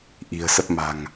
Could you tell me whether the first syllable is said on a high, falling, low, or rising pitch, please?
low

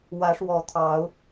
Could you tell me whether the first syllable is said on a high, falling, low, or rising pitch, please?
rising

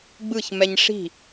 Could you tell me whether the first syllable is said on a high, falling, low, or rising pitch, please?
falling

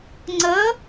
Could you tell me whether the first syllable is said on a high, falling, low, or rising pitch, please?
rising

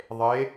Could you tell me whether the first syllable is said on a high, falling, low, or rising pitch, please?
rising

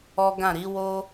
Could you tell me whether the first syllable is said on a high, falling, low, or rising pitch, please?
high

